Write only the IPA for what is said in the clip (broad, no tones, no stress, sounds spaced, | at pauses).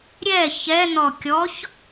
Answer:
ɾʲ ɛ ç ɛ n̪ ɔ kʲ ɔ ç